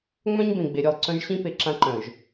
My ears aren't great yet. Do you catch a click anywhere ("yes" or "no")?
yes